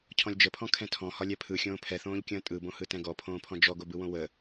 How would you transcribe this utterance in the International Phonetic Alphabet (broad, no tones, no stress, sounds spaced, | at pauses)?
cʰ ɔ̃ lʲ d͡ʒ ə pʰ ɔ̃ kʰ ɛ̃ tʰ ɔ̃ h ɒ lʲ ɛ pʰ ɯ xʲ õː pʰ ɛ θ õː ʎ kʲ ə̃ː tʼ ɯ b õ h ɯ t ɛ̃ ɡ ɔ pʰ õː pʰ ɔ̃ d͡ʒ ɔ ɡ o b ɯ w õ w ə